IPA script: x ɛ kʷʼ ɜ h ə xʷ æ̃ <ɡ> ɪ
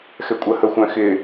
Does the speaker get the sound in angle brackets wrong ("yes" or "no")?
yes